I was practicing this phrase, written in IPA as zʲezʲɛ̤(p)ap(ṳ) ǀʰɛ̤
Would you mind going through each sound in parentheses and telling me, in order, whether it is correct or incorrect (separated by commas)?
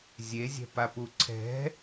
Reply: correct, incorrect